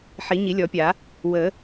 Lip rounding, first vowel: unrounded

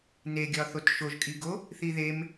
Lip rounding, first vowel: unrounded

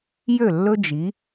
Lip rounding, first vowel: rounded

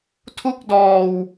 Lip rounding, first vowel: rounded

